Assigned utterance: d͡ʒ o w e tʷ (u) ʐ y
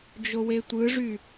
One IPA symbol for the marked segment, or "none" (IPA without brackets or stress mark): ɯ